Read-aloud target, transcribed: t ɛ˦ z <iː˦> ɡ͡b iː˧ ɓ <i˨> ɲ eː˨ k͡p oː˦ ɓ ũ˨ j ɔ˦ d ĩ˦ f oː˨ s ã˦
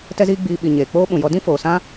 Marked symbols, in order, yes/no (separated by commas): yes, yes